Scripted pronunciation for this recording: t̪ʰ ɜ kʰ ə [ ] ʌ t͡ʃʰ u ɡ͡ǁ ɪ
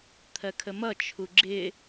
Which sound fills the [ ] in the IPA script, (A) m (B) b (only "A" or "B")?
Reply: A